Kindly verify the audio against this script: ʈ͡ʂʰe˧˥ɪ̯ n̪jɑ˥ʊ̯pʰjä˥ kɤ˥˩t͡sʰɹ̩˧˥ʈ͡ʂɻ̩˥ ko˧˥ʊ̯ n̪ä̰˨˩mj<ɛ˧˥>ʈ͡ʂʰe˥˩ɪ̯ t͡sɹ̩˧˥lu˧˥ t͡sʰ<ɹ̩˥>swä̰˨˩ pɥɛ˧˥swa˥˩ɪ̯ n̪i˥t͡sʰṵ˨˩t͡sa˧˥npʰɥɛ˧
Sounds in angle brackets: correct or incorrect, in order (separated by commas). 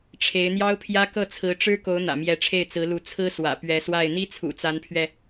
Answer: correct, correct